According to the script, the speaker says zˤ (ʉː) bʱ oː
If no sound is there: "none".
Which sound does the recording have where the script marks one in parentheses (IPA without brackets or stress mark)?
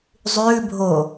ʉː